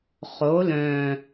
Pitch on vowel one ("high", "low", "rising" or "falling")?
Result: rising